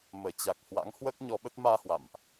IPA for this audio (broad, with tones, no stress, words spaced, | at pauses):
məː˧˩t͡ɕa˨˩k̚ hwa̰˧˥ŋhwəː˦˥k̚ɲɔ˨˦ɓə˦˥t̚ maː˧hwa̰˧˨mʔ